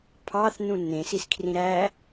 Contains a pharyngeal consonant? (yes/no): no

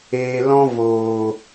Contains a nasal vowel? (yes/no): yes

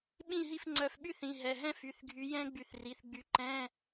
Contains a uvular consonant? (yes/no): no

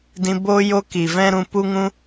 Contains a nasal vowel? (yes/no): yes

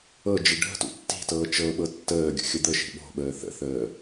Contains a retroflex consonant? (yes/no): yes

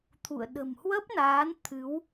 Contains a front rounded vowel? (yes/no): no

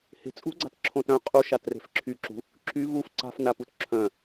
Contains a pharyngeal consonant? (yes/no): no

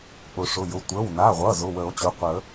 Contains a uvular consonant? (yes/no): yes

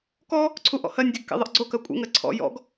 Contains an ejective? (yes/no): yes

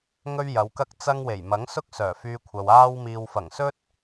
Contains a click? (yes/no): no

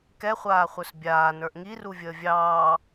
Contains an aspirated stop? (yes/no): no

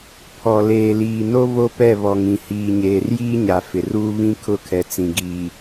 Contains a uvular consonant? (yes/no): no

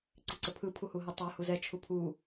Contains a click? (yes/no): yes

